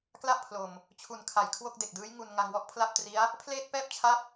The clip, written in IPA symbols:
kla˥˩ʔpʰlo˨˩m | t͡ɕʰu˨˩n kʰa˨˩jkʰwo˥˩k̚ de˨˩k̚dɯː˦˥j ŋu˧n ŋa˧ŋwɔ˥˩ʔpʰla˥˩p̚tri˦˥a̯ | pʰleː˥˩t̚pɛː˥˩p̚t͡ɕʰa˦˥p̚

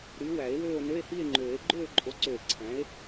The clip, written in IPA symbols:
ɾy˨˥ wæ˨˩˦e̯wøː˥˧o̯ nø˧˥˧e̯hi˥˧e̯ŋ͡ǃøː˨˩˦e̯ ɡ͡ǃøː˥˧ǃʼo˨˥ǀø˧˩e̯ ǀʰæ̃˨˥e̯

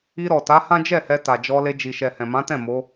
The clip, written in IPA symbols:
i˧ɾɔ˨ ta˨˦hã˦d͡ʒɛ˦˨hɛ˧ ta˨d͡ʒɔ˧le˧ d͡ʒi˨ʃɛ˨ hɛ̃˨mã˨˦tɛ̃˦˨ mo˨˦

